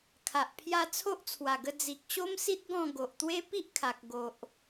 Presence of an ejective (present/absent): absent